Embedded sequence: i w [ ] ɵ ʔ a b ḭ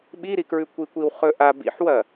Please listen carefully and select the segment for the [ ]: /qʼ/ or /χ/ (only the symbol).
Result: χ